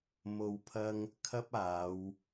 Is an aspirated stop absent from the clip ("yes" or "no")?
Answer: no